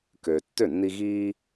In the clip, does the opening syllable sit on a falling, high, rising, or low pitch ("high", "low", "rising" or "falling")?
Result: low